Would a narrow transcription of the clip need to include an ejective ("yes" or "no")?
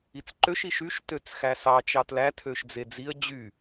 no